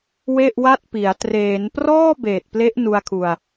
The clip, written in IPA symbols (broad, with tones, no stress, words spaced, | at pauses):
we˥˩ʔwa˥˩t̚pi˩˦a̯ treː˩˦nprɔː˥˩ beː˨˩t̚ple˦˥ʔ nu˧a̯kʰu˨˩a̯